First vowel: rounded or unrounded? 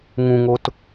rounded